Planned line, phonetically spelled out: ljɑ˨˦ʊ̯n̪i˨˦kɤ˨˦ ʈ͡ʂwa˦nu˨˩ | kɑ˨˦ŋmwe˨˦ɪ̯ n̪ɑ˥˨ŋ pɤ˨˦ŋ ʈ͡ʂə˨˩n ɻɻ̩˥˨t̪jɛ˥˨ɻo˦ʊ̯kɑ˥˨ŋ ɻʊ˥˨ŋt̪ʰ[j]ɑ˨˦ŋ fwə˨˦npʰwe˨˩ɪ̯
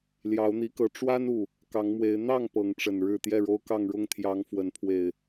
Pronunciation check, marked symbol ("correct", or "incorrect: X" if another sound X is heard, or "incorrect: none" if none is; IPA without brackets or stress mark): correct